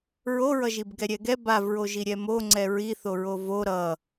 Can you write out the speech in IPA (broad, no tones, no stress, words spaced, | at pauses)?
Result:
ɹoɹʌʒib ɡɛɾʲɛɡɛ bavɹoʒi ɾʲɛmoŋ͡ǀɛ ɹiθo ɹovo ɾʌ